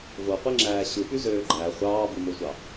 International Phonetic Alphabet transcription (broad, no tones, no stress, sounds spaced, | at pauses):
v o qʷ i ŋ͡ǁ æː ɕ ɯ p y z øː ɡ͡ǃ æ χʷ ɑː b ɯ m o sʷ ɑ